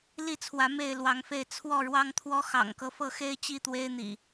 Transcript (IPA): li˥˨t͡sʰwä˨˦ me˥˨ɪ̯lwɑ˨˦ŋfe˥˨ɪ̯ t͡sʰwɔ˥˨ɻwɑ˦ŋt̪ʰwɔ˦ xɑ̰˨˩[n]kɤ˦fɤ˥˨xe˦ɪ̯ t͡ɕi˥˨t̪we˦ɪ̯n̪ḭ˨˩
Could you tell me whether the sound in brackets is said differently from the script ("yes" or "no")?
yes